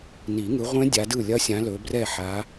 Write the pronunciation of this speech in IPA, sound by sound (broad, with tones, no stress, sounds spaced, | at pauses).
n i˨˩˦ ŋ ɯ˨˦ ʁʷ ẽ˦˥ dʲ a˨˦ d ɯ˥˩ lʲ ɐ˦˥ sʲ ã˨˦ l ɵ˨˦ b r ɛ˥˩ ħ a˨˦